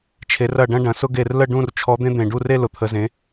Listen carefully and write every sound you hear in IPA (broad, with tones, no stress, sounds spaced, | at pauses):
t͡ʃʰ e˨˦ r ɐ˦˨ ɖ ɐ̃˦ ɖ ɐ̃˨˦ s ʊ˦ ɡ e˦˨ r l ə˦˨ ɖ ũ˦˨ r t͡ʃʰ ɔ˨˦ d̪ ẽ˦ d̪ ẽ˨˩ ɖ u˦˨ r e˦ l ʊ˨˦ t̪ʰ ə˨˦ z ẽ˨˦